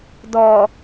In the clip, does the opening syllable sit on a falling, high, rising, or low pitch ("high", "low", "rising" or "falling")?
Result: low